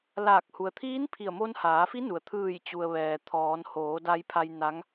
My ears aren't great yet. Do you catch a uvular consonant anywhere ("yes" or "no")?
no